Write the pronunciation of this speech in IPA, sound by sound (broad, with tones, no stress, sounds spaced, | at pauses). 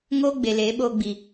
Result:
ŋ oː˦ ɡ͡b e˨ l eː˨˦ ɓ oː˧ ɡ͡b iː˨